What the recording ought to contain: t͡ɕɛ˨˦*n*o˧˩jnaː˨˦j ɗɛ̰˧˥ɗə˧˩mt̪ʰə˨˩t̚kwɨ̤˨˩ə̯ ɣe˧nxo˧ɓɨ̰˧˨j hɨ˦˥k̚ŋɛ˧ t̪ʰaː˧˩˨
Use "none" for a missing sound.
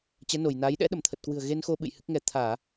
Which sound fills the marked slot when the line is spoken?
n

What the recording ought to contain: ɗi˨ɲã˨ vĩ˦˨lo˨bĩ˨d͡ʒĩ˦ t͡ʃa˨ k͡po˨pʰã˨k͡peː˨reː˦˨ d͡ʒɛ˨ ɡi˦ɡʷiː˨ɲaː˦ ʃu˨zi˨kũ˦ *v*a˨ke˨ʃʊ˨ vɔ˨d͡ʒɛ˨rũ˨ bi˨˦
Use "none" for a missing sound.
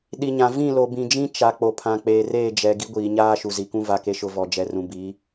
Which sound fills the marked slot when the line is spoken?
v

